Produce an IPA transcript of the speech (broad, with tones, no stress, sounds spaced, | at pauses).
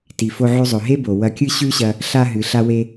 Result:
t i˩ f o˧ ʕ ʉ˧ zˤ ɵ˩ ɦ e˥ b o˩ w ɐ˧ kʲ ɨ˥ ɕ ʉ˥ ɕ ɐ˧ | ɬ a˧ ɦ ɨ˩ ɬ a˧ w e˧